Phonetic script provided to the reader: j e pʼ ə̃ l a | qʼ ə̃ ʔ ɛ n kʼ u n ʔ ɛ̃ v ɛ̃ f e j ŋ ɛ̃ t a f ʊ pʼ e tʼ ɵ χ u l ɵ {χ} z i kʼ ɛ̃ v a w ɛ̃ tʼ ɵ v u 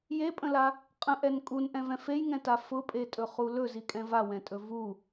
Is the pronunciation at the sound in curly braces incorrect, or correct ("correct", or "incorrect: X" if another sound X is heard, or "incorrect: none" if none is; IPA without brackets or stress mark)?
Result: incorrect: none